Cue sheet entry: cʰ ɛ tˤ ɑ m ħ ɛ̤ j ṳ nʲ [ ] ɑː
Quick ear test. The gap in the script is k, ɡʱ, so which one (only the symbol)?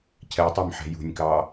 k